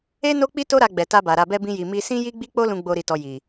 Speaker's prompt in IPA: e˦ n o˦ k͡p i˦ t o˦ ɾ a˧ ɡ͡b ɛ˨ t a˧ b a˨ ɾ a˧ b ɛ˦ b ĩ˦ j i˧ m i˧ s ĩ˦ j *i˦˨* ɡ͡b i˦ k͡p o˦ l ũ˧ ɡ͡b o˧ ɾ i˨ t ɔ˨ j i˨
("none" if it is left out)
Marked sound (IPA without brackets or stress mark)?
i˦